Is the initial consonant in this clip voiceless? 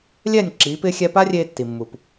no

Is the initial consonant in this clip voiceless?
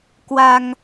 yes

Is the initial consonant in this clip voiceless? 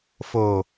yes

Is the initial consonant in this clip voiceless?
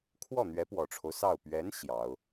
yes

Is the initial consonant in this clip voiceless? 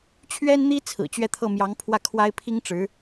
yes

